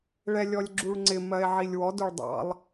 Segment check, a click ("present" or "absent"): present